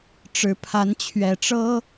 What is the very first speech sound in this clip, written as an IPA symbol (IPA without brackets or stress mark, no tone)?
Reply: ʈ͡ʂ